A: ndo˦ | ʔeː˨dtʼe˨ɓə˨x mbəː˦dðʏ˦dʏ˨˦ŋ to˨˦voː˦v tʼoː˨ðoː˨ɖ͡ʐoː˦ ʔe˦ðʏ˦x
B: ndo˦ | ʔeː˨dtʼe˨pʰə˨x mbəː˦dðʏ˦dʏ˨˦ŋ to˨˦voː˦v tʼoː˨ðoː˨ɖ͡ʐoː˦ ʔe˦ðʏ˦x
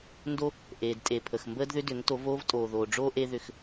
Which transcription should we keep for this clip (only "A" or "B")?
B